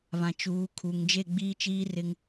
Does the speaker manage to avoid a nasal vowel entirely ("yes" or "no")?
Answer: no